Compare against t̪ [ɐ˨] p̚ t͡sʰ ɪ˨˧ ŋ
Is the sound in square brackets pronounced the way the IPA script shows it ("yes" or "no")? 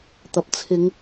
yes